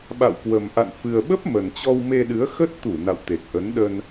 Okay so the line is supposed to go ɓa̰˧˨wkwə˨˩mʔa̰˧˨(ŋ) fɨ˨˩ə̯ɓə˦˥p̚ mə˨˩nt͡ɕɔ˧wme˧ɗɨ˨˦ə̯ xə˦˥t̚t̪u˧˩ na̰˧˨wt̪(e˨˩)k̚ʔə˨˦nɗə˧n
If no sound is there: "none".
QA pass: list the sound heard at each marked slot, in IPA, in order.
n, e˨˩

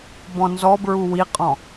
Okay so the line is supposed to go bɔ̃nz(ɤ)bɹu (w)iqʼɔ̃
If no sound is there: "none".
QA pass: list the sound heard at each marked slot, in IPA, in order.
ɔ, w

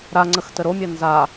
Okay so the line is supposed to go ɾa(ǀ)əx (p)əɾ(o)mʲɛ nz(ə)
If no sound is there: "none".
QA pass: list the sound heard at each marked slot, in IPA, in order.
ŋ͡ǀ, t, o, a

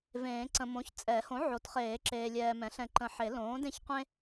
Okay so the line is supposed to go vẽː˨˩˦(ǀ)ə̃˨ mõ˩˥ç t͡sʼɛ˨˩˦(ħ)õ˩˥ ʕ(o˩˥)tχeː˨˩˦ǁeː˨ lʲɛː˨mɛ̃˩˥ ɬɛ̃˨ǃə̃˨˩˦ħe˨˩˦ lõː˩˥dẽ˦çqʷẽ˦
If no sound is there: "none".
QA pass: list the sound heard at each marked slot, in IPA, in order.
ǀ, h, o˩˥

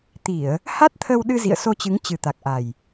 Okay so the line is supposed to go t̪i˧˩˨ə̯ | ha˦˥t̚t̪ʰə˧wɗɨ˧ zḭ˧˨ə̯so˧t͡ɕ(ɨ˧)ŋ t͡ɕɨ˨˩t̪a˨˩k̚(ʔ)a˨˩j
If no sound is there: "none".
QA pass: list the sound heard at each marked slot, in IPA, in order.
ɨ˨˦, ʔ

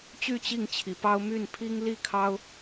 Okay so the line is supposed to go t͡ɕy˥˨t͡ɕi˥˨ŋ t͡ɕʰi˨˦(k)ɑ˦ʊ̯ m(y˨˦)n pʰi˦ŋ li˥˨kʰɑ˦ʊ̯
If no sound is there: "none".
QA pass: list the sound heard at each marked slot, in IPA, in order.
p, y˥˨

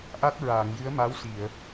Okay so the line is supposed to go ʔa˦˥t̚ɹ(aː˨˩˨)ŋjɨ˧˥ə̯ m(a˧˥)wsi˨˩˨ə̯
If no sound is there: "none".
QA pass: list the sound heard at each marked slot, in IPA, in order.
aː˨˩˨, a˧˥

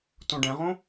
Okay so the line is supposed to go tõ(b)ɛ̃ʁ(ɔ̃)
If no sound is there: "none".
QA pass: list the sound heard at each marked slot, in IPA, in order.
ɖ, õ

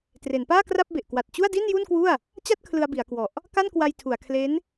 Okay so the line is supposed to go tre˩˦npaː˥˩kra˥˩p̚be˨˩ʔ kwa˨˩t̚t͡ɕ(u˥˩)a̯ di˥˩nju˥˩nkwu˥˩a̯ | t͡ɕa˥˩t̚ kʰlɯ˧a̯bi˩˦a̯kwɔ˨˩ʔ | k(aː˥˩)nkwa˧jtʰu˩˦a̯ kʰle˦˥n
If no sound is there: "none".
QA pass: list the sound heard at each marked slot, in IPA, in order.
u˥˩, a˥˩

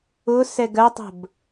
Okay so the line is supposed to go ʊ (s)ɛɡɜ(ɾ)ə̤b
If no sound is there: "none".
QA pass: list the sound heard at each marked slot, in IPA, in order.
s, tˤ

